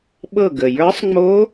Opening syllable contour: falling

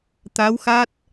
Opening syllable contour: rising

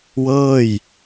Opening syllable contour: falling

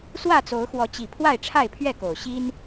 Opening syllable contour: falling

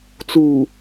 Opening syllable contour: low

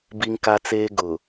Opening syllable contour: high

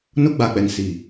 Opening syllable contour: high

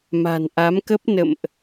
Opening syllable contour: low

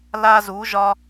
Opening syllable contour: high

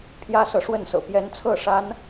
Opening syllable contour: high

